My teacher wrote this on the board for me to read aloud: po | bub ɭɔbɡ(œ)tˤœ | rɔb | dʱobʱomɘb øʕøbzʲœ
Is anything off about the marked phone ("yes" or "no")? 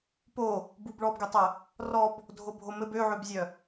yes